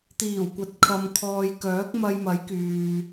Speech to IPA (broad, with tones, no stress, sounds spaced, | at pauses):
t̪ iː˨˩ w kʷ ɐ˨ t̚ kʰ ɐ˨ m kʰ ɔː˨ j k œː˨˥ k̚ m ɐ˧ j m ɐ˨˥ j k yː˨